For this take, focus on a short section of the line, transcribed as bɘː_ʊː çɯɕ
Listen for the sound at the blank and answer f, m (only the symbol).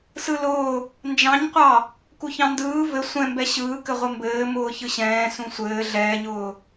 m